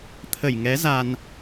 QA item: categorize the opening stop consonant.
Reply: aspirated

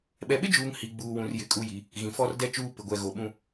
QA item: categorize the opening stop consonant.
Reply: implosive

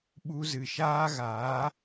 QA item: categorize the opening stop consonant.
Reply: implosive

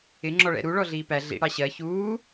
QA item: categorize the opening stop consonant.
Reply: click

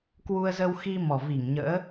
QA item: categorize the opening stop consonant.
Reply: plain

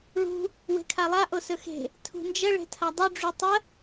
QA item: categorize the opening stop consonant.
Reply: aspirated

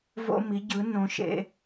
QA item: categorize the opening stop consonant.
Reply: plain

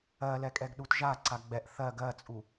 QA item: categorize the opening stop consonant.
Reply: ejective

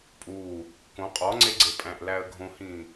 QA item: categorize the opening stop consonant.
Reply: ejective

